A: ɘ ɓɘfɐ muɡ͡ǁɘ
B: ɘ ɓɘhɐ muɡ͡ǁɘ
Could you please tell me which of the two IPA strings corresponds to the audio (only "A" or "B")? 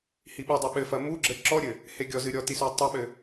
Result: A